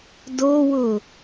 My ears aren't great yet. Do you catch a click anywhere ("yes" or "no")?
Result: no